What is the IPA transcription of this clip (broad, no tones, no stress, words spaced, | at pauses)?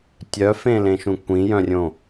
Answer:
tʲœfẽlẽʃũ kʷĩjœ̃rʲõ